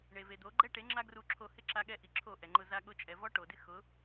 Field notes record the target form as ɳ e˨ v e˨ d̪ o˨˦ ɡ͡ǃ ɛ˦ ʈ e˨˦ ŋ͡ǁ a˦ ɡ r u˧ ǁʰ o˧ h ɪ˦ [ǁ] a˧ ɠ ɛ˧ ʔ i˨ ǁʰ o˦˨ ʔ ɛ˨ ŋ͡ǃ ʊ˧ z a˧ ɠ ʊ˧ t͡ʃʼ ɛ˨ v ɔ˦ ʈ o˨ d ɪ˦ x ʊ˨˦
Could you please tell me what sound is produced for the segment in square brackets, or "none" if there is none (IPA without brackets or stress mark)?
ǁ